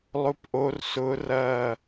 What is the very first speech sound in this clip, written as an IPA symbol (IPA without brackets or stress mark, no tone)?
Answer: lˠ